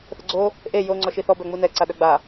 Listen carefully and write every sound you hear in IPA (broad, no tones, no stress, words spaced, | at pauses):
θəɡ͡ǀo | ʔe jo ŋ͡ǀɔʃiθɔ bœŋ͡munɛ ǀaɗœɡ͡ba